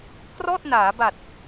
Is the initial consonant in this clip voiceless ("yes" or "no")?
yes